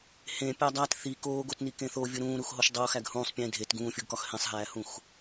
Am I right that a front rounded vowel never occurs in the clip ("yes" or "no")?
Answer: yes